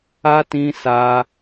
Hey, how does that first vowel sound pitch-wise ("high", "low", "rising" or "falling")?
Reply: high